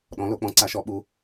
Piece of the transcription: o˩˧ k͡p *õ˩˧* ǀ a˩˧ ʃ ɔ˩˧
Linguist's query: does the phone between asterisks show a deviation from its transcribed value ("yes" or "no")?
yes